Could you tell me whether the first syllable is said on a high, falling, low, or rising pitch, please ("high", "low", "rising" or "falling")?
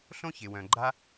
high